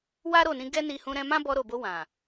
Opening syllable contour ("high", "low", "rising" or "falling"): high